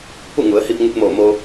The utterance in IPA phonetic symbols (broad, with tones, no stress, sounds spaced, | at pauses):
p u˥˨ ŋ u˩˧ ə̯ h i˧ p̚ ŋ u˧ t̚ m oː˧˩ m o˧